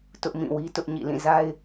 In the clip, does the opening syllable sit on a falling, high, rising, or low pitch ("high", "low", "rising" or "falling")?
high